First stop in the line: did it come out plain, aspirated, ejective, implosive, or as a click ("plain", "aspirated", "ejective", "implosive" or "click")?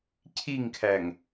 aspirated